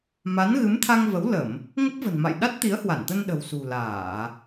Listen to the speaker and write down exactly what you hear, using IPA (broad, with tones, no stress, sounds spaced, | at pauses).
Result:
m a˨˦ n ɣ ɨ˨˦ m t̪ʰ a˧ ŋ v ə˨˦ w l ə˧˩˨ m | ŋ ə˦˥ p̚ v ə̤˨˩ n m a̰˧˨ j ɗ a˦˥ t̚ t̪ i˨˦ ə̯ h w a˧˩ n t̪ ə˧ n ɗ ə̤˨˩ w s ṳ˨˩ l aː˧˩˨